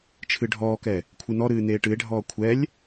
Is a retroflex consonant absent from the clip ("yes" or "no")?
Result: no